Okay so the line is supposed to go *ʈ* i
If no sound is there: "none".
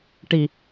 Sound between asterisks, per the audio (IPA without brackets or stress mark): ʈ